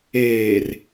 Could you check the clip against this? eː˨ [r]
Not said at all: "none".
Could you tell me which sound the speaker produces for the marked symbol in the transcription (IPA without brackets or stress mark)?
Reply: r